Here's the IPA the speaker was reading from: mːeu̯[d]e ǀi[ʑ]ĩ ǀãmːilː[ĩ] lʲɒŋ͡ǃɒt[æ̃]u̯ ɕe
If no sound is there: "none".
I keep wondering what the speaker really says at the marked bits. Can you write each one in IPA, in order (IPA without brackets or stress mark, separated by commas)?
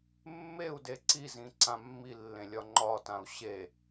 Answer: d, z, ẽ, ã